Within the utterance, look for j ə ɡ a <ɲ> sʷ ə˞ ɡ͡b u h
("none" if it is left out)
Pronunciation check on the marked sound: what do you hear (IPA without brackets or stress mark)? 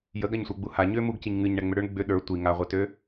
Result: ɲ